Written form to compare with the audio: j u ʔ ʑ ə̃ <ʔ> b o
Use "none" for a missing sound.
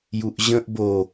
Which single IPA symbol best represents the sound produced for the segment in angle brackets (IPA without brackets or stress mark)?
ʔ